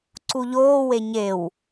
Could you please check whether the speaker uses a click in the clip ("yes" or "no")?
yes